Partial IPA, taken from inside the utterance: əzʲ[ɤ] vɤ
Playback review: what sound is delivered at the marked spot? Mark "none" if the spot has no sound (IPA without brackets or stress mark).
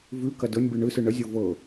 ɤ